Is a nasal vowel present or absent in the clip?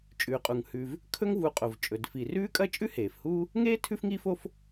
absent